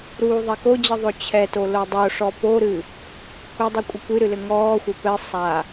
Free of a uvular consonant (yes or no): yes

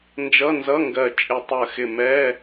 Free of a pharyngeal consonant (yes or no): yes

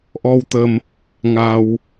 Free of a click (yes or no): yes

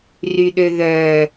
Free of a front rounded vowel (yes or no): no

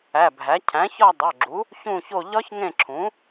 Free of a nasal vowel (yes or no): no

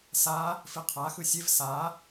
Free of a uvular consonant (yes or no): no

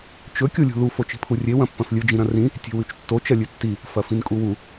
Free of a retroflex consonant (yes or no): yes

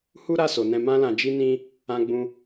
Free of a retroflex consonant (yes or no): yes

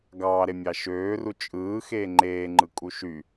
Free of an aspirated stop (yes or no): yes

